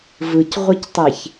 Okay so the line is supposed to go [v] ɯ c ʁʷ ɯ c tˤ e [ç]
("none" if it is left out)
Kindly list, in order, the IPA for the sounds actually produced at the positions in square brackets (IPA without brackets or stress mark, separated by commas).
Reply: v, ç